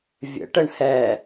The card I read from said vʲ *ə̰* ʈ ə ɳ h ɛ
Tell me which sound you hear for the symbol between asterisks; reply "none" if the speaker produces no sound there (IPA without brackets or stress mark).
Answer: ə̰